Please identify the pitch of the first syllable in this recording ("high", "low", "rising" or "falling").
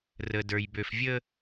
low